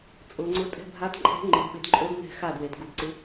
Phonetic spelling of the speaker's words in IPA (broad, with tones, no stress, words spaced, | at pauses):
t͡sʼʊ˩˧ŋ͡ǀʊ˧˥ tʼɛ̤˧˥˧bʱa˧˥dǃʼɛ̤˧˥ ŋ͡ǃɪ˩˧dɓɪ˩˧d ǃʼo˧˥d nɛ̤˥˨xa˥˨dwe˩˧d ɡu˩˧dǀɪ˧˥